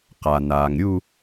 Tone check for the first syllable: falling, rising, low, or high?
low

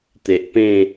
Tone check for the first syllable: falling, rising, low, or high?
low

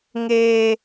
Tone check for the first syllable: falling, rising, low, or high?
high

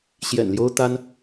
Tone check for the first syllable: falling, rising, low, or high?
low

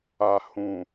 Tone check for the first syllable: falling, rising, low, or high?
low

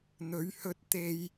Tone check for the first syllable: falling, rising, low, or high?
rising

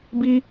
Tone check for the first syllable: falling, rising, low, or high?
high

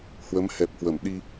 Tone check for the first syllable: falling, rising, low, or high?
rising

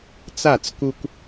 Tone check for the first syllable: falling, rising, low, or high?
falling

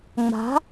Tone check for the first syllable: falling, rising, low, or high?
rising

